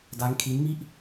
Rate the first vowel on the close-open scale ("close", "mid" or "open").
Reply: open